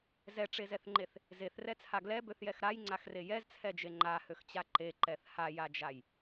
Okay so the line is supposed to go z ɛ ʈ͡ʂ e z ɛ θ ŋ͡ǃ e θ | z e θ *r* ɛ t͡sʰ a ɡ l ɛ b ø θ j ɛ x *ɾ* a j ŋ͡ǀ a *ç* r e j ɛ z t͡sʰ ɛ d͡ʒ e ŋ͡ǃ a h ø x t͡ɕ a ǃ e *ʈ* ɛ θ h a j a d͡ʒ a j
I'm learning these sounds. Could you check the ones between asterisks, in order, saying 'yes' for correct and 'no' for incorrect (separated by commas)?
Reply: yes, yes, no, no